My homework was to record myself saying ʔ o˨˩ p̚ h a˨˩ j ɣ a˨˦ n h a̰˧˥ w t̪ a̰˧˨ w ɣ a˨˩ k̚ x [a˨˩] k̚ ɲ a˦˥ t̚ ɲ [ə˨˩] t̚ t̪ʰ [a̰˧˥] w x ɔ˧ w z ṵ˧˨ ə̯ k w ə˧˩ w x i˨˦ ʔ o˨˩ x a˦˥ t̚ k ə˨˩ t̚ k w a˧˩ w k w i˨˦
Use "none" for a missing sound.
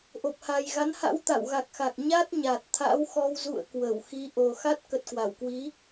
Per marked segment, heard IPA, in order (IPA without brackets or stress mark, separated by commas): a˨˩, a˨˩, a̰˧˥